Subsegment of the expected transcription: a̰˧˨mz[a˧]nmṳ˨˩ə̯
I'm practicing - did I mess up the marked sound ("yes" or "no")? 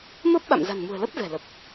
yes